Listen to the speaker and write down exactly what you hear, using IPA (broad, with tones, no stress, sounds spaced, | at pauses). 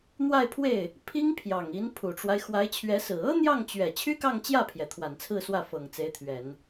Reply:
n̪ w a˥˧ ɪ̯ pʰ w e˥˩ ɪ̯ | pʰ i˥ ŋ pʰ j ɑ˨˩ ŋ i˧˥ n pʰ u˨˩ ʈ͡ʂ w a˦ ɪ̯ x w a˧˥ ɪ̯ t͡ɕʰ ɥ ɛ˧˥ s ɹ̩˨˩ ɤ˥ n̪ j ɑ˥˩ ŋ t͡ɕ ɥ ɛ˨˩ t͡ɕʰ y˥ k ɑ˥˧ ŋ t͡ɕ j ä˥˩ pʰ j ɛ˩ t̪ʰ w a˨˩ n t͡sʰ ɹ̩˥˧ s w ä˥˩ f ɤ˨˩ ŋ t͡s e˧˥ ɪ̯ t̪ʰ ɥ ɛ˨˩˦ n